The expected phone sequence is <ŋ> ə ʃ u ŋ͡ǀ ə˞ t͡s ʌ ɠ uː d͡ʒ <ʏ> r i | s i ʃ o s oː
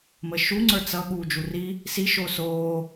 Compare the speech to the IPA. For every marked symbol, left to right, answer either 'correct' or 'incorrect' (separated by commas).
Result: incorrect, incorrect